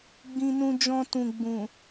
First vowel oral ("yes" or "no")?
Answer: no